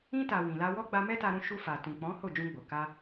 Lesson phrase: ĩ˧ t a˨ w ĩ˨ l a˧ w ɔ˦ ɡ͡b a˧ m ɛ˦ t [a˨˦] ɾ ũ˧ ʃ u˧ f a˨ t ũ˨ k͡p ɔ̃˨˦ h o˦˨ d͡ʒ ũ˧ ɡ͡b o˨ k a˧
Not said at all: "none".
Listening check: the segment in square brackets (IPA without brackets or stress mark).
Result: a˧